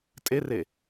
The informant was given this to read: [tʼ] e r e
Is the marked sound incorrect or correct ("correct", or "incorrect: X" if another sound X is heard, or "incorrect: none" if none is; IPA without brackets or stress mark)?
correct